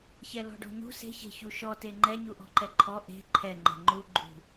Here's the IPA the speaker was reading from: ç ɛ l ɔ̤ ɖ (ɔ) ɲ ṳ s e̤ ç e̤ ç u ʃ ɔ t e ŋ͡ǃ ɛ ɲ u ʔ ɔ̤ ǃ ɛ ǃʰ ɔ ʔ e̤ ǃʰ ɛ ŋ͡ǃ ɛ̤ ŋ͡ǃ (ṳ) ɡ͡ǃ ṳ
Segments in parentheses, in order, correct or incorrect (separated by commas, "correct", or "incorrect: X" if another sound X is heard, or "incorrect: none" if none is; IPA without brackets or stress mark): incorrect: ɔ̤, incorrect: u